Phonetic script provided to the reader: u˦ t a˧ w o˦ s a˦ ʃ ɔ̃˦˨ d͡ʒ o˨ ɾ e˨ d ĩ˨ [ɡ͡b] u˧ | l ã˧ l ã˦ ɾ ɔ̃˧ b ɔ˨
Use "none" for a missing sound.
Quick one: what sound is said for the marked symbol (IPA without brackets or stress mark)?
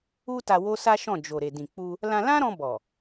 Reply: k͡p